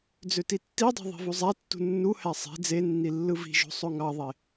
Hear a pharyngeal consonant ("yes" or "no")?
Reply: no